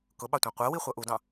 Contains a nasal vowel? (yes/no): yes